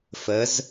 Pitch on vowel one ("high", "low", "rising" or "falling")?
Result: rising